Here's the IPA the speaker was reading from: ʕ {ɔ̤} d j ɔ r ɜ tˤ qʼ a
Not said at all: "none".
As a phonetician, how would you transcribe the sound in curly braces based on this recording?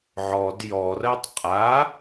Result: ɔ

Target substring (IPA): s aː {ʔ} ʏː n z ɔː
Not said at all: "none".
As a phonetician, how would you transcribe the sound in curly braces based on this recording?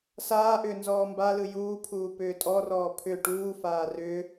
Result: ʔ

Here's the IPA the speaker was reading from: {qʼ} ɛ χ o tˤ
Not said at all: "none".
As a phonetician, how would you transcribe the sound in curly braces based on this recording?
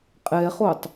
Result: qʼ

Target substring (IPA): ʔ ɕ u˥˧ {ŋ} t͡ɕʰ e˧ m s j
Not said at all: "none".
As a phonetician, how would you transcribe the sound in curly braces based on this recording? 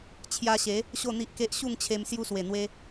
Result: ŋ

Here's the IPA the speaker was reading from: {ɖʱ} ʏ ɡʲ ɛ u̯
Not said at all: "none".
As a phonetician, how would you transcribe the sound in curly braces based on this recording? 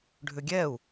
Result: ɖʱ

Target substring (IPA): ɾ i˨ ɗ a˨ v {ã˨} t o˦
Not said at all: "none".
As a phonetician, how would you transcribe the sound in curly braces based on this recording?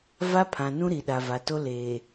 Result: a˨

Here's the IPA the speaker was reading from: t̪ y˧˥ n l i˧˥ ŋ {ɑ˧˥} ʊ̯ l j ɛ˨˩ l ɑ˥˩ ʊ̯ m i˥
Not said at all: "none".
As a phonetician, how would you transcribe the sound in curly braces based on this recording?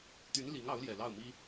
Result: ɑ˧˥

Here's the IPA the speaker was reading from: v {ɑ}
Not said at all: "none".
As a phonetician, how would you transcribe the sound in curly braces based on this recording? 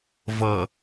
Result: ʌ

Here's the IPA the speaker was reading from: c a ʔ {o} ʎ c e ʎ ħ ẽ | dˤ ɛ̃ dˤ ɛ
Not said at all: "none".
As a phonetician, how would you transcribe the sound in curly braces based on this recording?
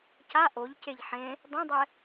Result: o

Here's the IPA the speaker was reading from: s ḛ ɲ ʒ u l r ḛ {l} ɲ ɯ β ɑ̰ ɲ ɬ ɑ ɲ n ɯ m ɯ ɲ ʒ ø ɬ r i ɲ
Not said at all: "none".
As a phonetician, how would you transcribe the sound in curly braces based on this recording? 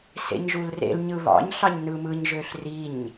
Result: l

